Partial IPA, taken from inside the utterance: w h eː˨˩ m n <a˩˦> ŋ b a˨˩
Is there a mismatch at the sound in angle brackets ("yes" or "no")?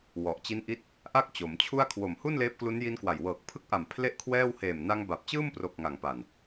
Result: yes